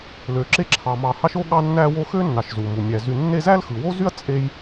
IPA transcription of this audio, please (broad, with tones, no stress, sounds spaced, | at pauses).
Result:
l ø˩ ǁ e˦ ǁʰ ɑ˩ m ɑ˨ h ɑ˥ ʃ o˥ ɠ ɑ˦ nː æ˦ w o˦ x ø˥ nː ɑ˨ ʃ z u˩ m u˩ mʲ æ˩ z y˨ nː e˦ z æ˥ l x ɯ˩ w o˥ z y˥ ɐ̯ t͡sʼ e˦ j